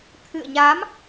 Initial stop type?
aspirated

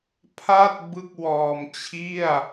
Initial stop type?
aspirated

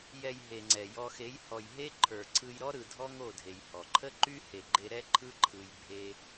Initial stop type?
click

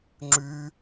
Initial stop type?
click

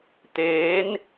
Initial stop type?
plain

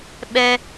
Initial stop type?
implosive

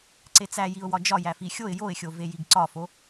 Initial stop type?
click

